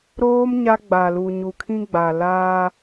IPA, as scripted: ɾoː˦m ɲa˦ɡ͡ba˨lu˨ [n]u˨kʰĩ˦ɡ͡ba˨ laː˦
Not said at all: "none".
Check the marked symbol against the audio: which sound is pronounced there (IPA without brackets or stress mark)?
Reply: ɲ